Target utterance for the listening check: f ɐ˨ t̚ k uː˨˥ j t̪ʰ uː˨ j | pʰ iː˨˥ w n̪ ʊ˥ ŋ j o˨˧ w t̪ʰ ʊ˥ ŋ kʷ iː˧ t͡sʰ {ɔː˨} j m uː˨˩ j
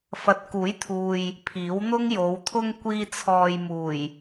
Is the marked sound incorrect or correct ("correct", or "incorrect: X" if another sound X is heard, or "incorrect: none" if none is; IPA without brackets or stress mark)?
correct